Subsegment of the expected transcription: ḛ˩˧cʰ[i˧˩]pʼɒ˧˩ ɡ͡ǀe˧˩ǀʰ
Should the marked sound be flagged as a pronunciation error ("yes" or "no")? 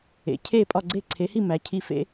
yes